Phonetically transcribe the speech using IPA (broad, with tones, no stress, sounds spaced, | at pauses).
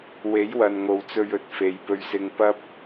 w e˨˥ j w ɐ˨ n ŋ o˨ w t͡s ɵ˧ ɥ ɵ˨ t̚ f e˨˧ j p ɵ˧ ɥ s ɪ˧ ŋ p ɐ˥ p̚